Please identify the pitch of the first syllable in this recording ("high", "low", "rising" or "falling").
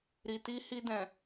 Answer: low